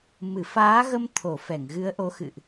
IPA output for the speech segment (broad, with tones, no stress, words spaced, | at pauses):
mɨ˧˩faː˨˦ɣə˧m t̪ʰo˧˩ fɛ˧˩ŋɣɨ˨˦ə̯ʔo˨˦ xɨ̰˧˨ʔ